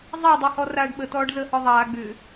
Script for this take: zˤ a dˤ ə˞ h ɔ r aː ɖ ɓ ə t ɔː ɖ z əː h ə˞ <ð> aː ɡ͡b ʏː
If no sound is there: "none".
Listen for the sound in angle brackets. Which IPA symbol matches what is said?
ðˤ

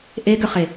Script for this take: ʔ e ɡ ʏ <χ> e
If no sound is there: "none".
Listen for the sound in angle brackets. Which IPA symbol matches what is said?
χ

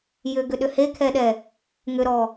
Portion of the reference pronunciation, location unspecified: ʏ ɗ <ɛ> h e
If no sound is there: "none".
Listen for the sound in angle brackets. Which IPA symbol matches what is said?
ʏ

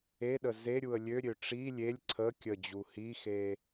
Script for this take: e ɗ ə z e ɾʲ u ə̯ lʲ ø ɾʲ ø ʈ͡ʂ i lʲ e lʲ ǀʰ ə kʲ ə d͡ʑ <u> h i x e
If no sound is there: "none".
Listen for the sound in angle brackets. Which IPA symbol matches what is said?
u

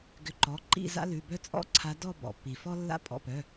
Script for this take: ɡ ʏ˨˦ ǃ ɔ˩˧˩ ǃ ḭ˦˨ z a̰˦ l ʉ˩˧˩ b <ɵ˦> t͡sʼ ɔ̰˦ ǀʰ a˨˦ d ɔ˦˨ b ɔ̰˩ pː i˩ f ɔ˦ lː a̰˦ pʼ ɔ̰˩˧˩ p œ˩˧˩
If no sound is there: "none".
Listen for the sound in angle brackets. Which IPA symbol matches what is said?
œ˦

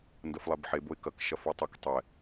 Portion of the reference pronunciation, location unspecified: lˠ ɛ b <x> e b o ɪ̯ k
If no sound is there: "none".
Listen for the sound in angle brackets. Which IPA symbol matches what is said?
ħ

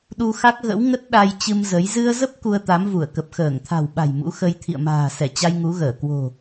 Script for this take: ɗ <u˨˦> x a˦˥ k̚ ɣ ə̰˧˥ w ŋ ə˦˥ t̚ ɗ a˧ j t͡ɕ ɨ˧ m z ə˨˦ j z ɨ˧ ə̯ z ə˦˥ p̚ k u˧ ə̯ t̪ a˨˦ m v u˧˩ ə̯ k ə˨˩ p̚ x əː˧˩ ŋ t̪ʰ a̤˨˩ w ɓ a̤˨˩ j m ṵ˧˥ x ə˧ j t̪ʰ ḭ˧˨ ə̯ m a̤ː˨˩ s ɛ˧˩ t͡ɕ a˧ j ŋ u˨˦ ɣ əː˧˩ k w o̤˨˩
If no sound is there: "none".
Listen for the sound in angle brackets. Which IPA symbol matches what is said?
u˧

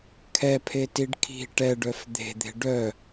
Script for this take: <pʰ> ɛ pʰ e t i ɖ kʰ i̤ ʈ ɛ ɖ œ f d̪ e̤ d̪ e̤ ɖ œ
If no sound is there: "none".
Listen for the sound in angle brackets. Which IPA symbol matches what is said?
kʰ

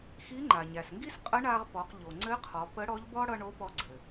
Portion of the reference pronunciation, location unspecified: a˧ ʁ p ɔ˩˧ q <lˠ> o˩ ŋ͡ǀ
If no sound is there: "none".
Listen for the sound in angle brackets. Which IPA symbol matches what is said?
ʎ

